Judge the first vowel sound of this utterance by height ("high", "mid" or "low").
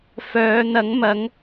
mid